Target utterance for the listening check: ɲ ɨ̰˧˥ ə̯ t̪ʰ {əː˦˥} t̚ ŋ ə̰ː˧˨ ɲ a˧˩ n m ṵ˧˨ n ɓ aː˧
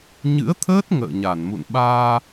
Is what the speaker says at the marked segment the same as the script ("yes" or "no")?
yes